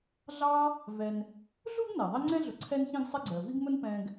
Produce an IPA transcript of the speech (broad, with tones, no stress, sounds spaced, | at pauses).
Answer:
ɮ ɑ˦ | v ɛ˨ n | ɮ u˥ ɡ n ɛ˩ ðˤ i˦ ŋ͡ǀ ɛ̃˥ ɮ ʊ˨ ǀʰ ɛ˦ n ç ĩ˦ ɡ sˤ ɪ˦ ɡ͡ǀ ɜ˩ v i˥ ɡ m ʊ˥ n p ɛ̃˦ ɡ